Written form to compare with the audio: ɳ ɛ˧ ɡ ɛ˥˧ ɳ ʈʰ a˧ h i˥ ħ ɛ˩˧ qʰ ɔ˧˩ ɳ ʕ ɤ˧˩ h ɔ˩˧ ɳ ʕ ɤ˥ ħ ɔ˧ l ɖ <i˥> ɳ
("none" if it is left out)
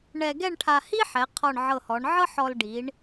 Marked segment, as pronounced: i˩˧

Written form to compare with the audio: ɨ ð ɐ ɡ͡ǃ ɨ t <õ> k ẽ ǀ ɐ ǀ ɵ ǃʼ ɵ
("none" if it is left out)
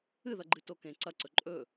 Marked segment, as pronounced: o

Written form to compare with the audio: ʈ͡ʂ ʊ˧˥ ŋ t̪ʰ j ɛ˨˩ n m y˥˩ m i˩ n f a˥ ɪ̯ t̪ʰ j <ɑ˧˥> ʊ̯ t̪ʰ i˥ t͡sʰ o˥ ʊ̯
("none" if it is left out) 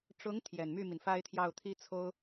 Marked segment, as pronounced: ɑ˥˩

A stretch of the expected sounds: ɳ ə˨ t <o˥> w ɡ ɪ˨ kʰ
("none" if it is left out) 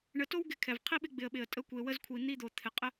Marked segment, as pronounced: o˥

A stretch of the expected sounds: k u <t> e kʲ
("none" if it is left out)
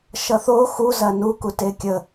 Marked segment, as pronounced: t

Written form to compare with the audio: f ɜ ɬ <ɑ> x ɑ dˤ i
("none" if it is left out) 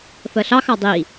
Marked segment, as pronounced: ɑ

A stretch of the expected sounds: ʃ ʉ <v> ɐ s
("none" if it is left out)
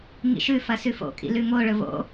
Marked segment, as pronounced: f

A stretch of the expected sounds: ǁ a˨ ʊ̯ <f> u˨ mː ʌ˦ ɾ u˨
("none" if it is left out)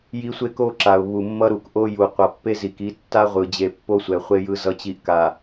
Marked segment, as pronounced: β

